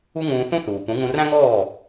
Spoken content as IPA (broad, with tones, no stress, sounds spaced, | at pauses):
u˥ ŋ ũː˧ θ ũ˥ θ uː˩ p ũ˩˥ ŋ ũ˧ r æ̃˥ ŋ ɔː˥˩